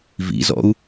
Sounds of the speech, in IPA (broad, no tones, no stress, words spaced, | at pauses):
vḭzɔ̰u̯